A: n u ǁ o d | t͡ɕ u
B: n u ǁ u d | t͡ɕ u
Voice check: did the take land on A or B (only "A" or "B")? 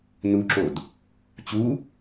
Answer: A